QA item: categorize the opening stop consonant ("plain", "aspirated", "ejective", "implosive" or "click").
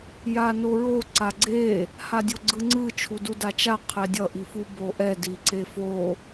click